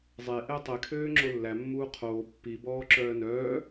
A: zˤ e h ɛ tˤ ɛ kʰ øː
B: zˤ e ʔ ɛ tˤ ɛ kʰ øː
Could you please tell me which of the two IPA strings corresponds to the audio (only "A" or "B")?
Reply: B